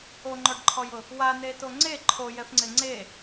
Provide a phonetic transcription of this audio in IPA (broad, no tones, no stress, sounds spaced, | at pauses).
o ŋ͡ǃ ɔ ɖ ǃʰ ɔ j ʊ | w a n e t o ŋ͡ǀ e ǃʰ o j ɛ f ŋ͡ǀ ɪ ŋ͡ǀ e